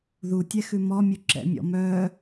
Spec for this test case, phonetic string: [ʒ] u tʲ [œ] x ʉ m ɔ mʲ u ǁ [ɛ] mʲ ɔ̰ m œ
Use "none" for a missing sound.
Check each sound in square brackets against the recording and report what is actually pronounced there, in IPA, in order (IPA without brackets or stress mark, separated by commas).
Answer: ð, ɛ, ɛ̰